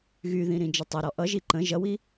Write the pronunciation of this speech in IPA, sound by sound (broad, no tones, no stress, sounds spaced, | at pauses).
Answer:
ɣ y ð ĩ ɾ ĩ d͡ʒ ʌ tˤ ɛ ɾ ɔ ʔ ʌ ʒ i ǃ ə̃ ʒ ʌ w i